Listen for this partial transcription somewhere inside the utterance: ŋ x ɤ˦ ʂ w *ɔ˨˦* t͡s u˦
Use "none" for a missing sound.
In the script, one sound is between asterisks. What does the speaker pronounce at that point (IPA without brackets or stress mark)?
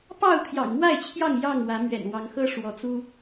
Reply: ɔ˨˦